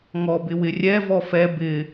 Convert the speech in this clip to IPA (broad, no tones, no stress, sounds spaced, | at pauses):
ŋ ɔ b ɪ w ɪ rʲ ɛ v ɔ f ɛ b ɪ